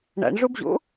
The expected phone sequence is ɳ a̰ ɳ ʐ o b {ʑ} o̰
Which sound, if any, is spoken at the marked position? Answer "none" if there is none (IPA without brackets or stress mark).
ʑ